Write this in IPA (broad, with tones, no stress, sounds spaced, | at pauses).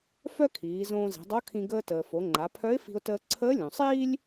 f œ˥ kʰ iː˩˧ z õː˧ z i̤˩˧ dˤ o˧˥ kʰ ĩ˧ ɡ əː˧ t əː˩ f o˩˧ ŋ͡ǃ a˩˧ pʰ œ˧˥ ɪ̯ f i̤˧ ʊ̯ t əː˧ ǀʰ əː˧˥ lʲ õ˩ sˤ iː˥ lʲ